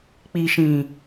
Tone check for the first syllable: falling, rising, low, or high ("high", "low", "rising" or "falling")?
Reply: low